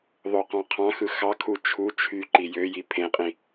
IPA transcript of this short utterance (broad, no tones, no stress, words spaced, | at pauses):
ðˤoqɑ̃qʰɑ̃xɯ xɑkʰu t͡ʃʰu t͡ʃʰy ǃijøji pʰẽqʼĩ